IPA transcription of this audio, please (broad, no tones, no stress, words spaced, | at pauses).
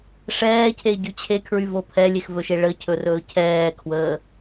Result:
ʂɛːcʰeɟy t͡ɕʰekʰɹyvo pʰɛlʲexvɵʃe ɭəcʰɵrɵː cʰɛːkʰwəː